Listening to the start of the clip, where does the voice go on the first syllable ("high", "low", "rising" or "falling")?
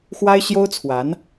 high